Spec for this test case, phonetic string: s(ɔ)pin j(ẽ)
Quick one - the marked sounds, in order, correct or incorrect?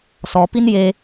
correct, incorrect

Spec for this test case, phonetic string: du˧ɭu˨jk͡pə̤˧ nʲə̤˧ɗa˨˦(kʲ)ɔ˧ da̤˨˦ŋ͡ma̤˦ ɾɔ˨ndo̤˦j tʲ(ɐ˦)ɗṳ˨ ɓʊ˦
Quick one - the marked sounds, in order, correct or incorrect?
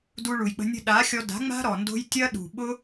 incorrect, correct

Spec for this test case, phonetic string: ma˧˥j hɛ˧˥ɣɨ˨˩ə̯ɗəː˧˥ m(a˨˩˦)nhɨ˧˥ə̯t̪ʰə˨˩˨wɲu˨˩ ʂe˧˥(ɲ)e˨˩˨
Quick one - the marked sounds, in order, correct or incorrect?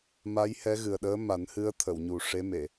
correct, incorrect

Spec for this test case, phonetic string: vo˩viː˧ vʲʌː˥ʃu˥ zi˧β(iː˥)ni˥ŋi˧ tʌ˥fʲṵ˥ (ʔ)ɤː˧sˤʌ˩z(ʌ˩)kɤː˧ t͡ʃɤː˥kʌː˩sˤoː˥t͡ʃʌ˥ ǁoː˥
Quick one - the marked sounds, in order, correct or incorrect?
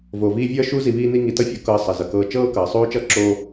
correct, incorrect, correct

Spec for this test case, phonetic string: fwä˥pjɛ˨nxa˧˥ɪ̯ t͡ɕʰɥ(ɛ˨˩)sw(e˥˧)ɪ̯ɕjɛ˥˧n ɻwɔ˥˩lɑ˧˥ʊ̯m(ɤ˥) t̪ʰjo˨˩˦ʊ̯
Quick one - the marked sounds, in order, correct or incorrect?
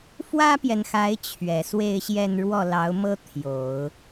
correct, correct, correct

